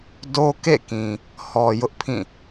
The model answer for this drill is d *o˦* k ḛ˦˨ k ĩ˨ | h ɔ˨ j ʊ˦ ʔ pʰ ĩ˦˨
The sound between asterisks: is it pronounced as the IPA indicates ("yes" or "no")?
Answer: yes